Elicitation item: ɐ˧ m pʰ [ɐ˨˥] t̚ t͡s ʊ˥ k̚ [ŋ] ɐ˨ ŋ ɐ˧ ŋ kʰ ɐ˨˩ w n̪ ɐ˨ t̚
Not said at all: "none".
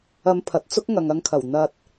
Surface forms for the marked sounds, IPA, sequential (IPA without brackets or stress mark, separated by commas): ɐ˨, ŋ